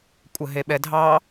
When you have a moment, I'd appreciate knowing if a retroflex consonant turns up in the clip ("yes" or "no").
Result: no